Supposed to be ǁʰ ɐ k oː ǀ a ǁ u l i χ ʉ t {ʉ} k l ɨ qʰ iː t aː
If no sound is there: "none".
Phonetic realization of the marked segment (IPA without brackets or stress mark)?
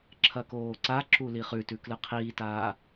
ʉ